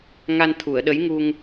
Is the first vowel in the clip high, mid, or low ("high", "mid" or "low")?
low